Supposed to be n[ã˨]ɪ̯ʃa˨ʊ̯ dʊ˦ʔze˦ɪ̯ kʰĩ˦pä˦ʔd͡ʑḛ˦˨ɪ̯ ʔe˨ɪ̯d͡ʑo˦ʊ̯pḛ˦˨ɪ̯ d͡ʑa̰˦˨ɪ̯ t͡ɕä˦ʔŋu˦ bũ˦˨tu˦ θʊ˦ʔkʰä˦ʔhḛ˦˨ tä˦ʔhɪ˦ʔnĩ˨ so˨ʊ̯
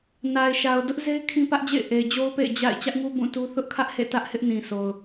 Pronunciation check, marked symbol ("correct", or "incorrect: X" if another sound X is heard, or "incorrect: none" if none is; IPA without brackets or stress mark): incorrect: a˨